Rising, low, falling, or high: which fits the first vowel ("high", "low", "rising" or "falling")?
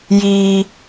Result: high